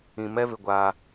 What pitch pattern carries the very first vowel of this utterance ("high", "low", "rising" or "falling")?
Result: low